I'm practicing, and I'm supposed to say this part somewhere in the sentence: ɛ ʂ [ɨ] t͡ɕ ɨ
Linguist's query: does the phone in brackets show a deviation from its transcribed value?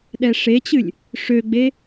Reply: yes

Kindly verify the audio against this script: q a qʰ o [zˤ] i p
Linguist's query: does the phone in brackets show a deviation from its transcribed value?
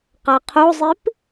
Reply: no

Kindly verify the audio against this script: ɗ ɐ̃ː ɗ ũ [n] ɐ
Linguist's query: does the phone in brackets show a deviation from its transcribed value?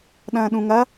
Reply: yes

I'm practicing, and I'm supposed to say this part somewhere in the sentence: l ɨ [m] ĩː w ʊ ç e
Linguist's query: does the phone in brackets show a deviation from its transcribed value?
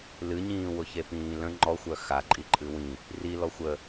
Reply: yes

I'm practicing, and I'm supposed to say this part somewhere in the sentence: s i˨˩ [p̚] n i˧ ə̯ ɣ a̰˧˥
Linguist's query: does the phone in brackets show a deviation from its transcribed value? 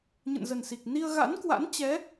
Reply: yes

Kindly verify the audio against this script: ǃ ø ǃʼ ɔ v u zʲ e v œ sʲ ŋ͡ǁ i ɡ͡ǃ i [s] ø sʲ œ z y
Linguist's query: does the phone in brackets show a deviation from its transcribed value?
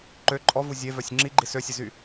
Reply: no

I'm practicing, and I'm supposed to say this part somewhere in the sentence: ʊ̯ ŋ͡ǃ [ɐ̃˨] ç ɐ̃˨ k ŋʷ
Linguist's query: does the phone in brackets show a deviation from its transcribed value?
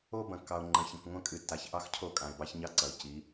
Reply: no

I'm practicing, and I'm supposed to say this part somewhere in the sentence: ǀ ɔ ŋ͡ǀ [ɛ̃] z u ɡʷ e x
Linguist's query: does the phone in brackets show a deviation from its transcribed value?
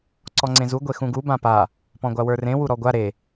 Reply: yes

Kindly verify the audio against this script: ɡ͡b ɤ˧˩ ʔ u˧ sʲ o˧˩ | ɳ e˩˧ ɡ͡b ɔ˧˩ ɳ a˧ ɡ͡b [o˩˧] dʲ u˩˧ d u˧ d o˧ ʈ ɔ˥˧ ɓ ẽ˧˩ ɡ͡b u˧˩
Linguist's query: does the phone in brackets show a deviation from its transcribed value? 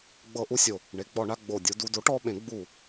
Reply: yes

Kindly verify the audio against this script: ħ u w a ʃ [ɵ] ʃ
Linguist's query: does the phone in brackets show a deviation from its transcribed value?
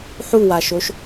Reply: yes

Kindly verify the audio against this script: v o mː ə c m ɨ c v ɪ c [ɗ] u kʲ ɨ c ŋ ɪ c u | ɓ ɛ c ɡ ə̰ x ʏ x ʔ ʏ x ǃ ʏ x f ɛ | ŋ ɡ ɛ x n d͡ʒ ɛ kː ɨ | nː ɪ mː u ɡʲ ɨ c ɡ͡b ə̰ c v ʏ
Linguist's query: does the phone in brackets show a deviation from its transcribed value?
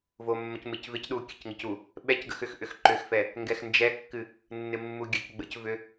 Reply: no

